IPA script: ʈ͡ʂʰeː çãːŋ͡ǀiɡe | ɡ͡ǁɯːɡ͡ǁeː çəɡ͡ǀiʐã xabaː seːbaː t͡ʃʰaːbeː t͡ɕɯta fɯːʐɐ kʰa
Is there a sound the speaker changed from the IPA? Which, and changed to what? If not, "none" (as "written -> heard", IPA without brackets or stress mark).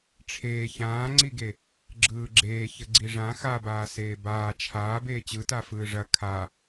none